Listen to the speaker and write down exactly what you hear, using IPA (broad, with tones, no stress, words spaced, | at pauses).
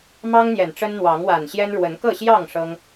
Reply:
mɑ˦ŋn̪jɛ˨˩n ʈ͡ʂə˦nn̪wɑ˨˦ŋwa˨˩nɕjɛ˦n ɻwə˨˦n kɤ˥˨ɕjɑ˥˨ŋ ʂɤ˦ŋ